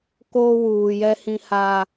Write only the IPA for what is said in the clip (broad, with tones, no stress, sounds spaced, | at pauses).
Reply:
k oː˦ w uː˨ j ɛ˦ h ĩ˦ h a˦